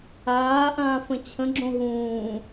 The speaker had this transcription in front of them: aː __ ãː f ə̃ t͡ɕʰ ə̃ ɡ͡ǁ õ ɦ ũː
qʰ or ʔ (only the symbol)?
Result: ʔ